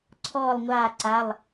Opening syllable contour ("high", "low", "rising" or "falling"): falling